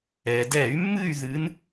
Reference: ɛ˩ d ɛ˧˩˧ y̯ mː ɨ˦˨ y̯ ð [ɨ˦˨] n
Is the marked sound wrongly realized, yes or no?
yes